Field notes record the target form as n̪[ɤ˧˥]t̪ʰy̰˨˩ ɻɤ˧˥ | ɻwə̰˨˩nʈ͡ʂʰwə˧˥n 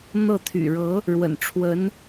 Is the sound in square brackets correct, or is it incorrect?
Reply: incorrect: ɤ˥˩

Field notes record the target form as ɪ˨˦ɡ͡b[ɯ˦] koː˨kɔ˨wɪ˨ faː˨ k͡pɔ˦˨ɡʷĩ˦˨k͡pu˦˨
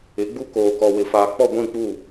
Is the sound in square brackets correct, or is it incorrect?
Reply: incorrect: u˦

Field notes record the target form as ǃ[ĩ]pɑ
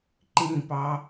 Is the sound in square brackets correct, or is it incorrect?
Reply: correct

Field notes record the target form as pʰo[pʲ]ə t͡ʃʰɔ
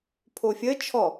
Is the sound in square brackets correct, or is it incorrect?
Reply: incorrect: fʲ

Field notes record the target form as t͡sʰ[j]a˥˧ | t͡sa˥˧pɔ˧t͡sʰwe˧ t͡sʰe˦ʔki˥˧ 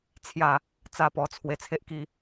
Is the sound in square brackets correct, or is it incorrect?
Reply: correct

